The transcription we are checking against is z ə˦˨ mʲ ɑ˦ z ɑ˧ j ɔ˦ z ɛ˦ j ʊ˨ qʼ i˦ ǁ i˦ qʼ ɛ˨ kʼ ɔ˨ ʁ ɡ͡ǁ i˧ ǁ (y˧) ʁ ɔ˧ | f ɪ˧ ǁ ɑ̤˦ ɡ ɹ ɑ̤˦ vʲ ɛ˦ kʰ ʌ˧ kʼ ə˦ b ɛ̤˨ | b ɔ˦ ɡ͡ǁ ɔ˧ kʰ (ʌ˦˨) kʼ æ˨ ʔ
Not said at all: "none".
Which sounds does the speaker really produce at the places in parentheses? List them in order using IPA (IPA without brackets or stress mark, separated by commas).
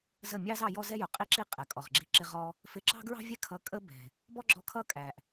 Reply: ɪ˧, ʌ˦˨